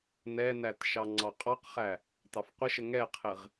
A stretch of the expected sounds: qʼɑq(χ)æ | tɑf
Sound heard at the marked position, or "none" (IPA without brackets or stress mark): χ